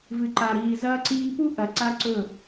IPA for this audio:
v ɨ˨ ǃ a˨ ɾ iː˨ z ɐː˦ ǀ iː˦ p u˦ ʔ ɐ˨ ǀ a˦ ǀ ɵ˦˨

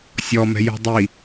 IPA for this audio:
sʲ ɔ m ɛ̤ j ṳ dˤ i

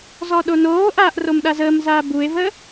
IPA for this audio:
z ɔ ɗ o n oː ʔ aː ʔ r o m ɗ a z əː m z aː b u e̯ v əː

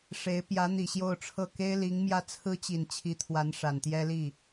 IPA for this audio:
ʂ e˧˥ ɪ̯ p j ä˧˥ n̪ i˨˩ ɕ j o˥˧ ʊ̯ ʈ͡ʂʰ ɤ˥˩ k e˥ ɪ̯ l i˧˥ ŋ m j ä˥˩ t͡sʰ ɹ̩˥ t͡ɕ i˨˩ n t͡ɕʰ i˧˥ t̪ʰ w a˧˥ n ʂ a˨˩ n t̪ j ɛ˥ l i˥˩

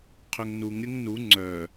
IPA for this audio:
qʰ ø ŋ n u ŋ ɾʲ ə ŋ n u ŋ͡ǀ œ

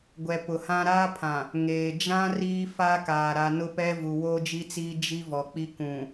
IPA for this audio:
ɡʷ ɛ˨ p ʊ˨ h ã˦ ɾ aː˦ pʰ ã˨ | ŋ eː˨ d͡ʒ ã˦ r iː˦ f a˦ k aː˨ ɾ a˨ n ʊ˦ p ɛ˦ v u˨ w oː˦ d͡ʒ i˦ t͡s iː˦ d͡ʒ i˦ v ɔ˨ k͡p i˦ k ũ˨

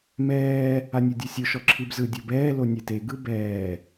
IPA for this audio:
m ɛː | a nʲ ɤ dʲ o sʲ o ʃ ɔ ǁʰ i b z ɯ dʲ ɤ b ɛː l o nʲ ɛ t e ɡ ɯ b ɛː

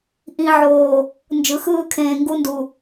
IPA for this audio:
ʔ ĩ˨ ʕ oː˨ | n d͡ʒ ɯ˨ x ɯː˦ kʰ ẽː˨ ŋ ɡ u˦ n d u˨

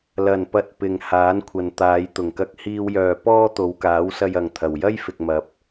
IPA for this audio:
l ɐ˨˩ n p ɐ˨ t̚ p ɪ˨ ŋ h aː˨˥ n kʷʰ ɐ˨ n t̪ aː˨˧ j t̪ ʊ˨˩ ŋ k ɐ˧ k̚ h iː˧ w j œː˨ p ɔː˥ t̪ o˨˧ w k aː˨˥ w s ɐ˧ j ɐ˨ ŋ t̪ʰ ɐ˨˩ w j ɐ˥ j f ɪ˨ k̚ m ɐ˨ p̚

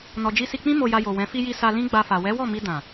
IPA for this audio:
n ɔ˨ d͡ʒ i˧ s i˧ k͡p ĩ˦ m o˧ j a˧ j o˨ w ɛ̃˨˦ f i˧ j i˧ s a˧ l ĩ˦ ɡ͡b a˧ f a˨ w ɛ˨˦ w ɔ˦˨ m i˧ d ã˨

